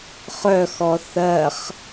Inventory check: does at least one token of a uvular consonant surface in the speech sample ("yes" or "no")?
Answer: yes